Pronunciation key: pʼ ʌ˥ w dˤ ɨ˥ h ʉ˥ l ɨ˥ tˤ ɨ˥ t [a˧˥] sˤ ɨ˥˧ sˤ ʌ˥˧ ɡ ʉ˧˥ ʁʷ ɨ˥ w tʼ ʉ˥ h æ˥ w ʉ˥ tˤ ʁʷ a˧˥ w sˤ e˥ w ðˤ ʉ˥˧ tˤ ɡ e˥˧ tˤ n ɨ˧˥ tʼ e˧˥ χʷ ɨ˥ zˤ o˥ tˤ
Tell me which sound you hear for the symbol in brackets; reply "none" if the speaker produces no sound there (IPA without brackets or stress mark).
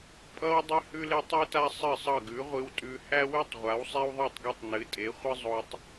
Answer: a˥